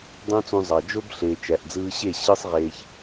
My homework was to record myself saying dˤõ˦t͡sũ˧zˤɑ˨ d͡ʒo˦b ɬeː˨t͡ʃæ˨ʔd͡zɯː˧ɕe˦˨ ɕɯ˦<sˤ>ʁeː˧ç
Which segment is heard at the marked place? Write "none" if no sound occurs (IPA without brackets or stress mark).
sˤ